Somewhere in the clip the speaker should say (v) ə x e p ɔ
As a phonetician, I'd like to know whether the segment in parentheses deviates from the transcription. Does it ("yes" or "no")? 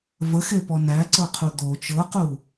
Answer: no